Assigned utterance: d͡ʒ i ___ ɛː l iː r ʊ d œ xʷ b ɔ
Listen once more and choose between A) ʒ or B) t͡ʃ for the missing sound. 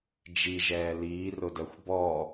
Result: A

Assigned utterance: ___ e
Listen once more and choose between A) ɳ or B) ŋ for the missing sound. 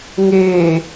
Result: B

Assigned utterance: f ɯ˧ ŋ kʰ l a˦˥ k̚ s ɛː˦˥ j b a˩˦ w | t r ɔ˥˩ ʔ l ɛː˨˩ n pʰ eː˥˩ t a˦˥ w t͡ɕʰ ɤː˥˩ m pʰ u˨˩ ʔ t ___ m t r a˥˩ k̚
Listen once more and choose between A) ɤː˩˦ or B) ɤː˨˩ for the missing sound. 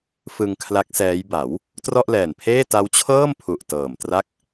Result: B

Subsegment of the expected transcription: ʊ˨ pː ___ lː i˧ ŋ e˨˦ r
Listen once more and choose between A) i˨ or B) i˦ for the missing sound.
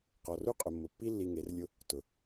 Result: B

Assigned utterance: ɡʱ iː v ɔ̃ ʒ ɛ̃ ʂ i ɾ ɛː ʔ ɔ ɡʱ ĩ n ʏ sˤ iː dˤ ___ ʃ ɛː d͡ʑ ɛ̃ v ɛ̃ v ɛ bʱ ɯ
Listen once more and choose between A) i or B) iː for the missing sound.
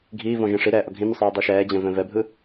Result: A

